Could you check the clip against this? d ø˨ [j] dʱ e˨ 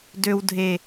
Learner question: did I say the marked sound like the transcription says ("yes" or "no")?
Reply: no